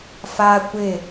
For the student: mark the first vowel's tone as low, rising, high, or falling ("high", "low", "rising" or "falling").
high